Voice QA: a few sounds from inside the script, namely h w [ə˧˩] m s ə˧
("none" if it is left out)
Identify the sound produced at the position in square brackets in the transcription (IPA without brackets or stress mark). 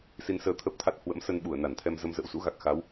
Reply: ə̰˧˥